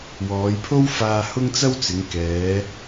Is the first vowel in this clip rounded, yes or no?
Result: yes